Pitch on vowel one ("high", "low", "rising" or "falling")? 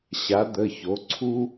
rising